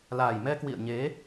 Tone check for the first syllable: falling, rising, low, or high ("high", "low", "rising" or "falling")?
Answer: low